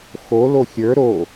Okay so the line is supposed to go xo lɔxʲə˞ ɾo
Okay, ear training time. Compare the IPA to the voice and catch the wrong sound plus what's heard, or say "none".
ɔ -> o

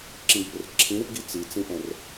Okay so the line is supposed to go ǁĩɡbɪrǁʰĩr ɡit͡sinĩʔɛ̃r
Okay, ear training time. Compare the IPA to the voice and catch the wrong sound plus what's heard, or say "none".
n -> t͡s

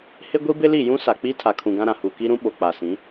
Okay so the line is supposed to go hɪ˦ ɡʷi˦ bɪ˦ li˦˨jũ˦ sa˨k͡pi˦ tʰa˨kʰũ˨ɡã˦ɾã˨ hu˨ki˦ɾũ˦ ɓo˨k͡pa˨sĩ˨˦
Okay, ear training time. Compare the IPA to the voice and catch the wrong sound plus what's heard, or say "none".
none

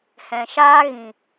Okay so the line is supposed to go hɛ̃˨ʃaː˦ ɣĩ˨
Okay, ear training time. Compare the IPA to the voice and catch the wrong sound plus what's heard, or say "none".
none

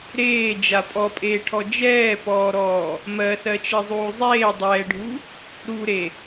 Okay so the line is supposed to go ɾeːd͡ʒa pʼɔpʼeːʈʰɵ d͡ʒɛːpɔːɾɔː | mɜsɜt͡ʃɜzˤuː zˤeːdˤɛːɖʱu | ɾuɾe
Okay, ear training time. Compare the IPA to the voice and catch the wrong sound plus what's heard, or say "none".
ɵ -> ɔ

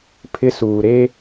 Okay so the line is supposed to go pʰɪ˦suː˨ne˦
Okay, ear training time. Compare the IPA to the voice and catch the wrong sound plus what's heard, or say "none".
n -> ɾ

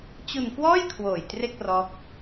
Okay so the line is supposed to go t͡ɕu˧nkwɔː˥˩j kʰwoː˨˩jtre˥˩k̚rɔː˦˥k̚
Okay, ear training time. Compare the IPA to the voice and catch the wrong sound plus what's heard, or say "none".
none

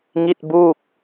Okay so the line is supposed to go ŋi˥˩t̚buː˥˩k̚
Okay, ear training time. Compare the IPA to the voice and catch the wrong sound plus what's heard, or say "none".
none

